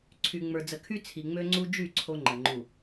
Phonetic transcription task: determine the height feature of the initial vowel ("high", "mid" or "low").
high